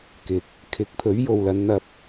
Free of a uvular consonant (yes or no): yes